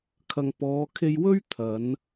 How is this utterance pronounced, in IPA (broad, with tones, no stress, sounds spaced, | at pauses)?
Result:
kʰ ɐ˨ ŋ p ɔː˨˧ kʰ e˧ j w ɵ˥ ɥ t̪ʰ ɐ˨˧ n